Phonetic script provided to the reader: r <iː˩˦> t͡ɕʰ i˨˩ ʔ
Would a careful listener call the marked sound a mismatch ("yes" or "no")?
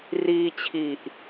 yes